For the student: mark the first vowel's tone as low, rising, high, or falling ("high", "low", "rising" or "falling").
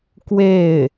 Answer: falling